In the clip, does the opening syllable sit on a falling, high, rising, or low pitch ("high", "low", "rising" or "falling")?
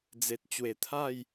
low